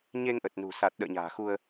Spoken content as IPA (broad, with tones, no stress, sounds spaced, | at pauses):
ɲ e˧ ŋ ʔ ə˨˩ t̚ n ṳ˨˩ s a˨˩ t̚ ɗ ə̰ː˧˨ ɲ a̤ː˨˩ x u˧ ə̯